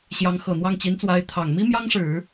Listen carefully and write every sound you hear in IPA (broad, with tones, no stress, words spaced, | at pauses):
ɕjɑ˧˥ŋxɤ˨˩n̪wɑ˥˩ŋ t͡ɕi˧˥nt͡swa˧˥ɪ̯ t̪ʰɑ˨˩ŋ mi˥ mjɑ˥ŋʂɻ̩˨˩˦